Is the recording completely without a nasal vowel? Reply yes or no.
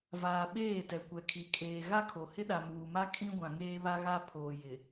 no